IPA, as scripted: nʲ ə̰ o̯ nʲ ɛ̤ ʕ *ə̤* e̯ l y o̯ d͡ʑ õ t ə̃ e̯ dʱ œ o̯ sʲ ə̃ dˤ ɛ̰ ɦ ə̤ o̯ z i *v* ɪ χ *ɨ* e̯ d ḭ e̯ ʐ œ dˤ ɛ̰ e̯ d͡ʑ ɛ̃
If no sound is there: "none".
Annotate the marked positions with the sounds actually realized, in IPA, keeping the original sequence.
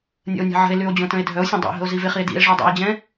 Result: ə̤, v, i

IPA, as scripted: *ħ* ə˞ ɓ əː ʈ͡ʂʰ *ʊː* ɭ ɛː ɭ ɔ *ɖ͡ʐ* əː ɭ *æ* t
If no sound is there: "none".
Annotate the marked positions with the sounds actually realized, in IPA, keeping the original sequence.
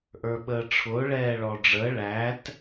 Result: ʔ, ʊː, ɖ͡ʐ, æ

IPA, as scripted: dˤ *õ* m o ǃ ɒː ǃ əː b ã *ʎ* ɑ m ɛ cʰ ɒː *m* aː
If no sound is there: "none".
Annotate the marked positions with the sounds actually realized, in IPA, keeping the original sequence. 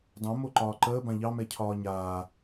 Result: õ, ʎ, ɲ

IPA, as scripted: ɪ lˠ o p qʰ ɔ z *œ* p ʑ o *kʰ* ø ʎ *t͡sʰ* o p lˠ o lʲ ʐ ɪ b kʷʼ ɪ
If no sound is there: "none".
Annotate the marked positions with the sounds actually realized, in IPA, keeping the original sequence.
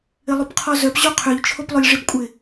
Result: œ, qʰ, t͡ʃʰ

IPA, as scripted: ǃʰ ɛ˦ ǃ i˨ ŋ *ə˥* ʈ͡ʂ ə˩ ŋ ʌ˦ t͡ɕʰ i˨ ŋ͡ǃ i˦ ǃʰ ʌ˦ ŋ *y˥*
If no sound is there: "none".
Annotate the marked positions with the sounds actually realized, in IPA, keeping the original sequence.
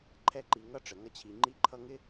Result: ʌ˥, ɪ˥

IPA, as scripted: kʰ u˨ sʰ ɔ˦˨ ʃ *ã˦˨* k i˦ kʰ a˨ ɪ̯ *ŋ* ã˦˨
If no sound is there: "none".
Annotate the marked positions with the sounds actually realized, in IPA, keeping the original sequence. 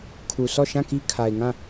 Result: ã˦˨, ŋ

